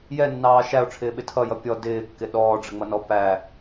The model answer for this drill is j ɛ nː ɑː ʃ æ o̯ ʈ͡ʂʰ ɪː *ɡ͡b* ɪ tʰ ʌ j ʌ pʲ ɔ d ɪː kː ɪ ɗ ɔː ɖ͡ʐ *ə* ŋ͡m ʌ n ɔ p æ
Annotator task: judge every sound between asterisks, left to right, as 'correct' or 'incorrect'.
incorrect, correct

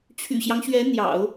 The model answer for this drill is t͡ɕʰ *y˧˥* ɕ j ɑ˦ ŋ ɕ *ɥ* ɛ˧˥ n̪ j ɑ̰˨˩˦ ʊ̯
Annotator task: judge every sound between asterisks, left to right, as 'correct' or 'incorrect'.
incorrect, correct

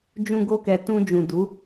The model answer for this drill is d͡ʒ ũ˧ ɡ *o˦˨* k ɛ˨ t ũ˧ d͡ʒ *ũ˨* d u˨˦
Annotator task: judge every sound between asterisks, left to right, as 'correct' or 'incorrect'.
incorrect, correct

